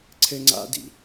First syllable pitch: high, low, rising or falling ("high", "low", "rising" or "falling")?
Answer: high